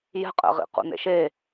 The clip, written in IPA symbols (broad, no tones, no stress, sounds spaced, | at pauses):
j ɛ̤ qʼ ɛ̰ ʁ ḭ q ṵ n ḛ ʃ e